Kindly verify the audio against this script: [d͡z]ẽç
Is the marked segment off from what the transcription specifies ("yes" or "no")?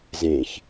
yes